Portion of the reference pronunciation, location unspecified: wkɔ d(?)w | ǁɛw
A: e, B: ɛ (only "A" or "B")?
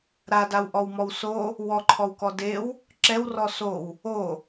A